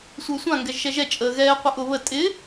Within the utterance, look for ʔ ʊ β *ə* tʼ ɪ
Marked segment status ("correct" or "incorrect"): correct